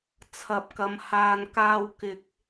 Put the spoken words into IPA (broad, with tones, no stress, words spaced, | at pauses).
t͡sʰɐ˨p̚kɐ˨˧m haː˨nkaː˧w kɪ˧k̚